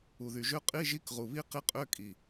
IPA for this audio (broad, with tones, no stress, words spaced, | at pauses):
u˨˩ðy˨˩ʒø˦˥ qʼi˧˥˧ʒi˧˥˧kʁu˨˩βi˦˥ qi˦˥qʼø˧˥˧kʼi˨˩